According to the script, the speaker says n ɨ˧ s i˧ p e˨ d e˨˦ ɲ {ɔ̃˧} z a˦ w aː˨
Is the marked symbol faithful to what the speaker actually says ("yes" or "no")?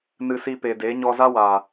no